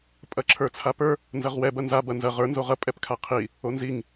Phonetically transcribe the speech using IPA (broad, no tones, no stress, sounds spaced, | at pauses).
pʼ ɐ ǁʰ ə˞ t͡sʰ a p ə˞ | n z ɐ ʁ w ɛ b ɐ n z a b ɐ n z ɐ ʁ ə˞ n z o ʁ ɐ pʼ ɛ p kʰ a qʰ i | o n z i ŋ